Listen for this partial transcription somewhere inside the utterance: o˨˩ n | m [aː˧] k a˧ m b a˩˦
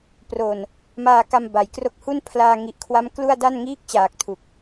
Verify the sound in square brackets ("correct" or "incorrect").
correct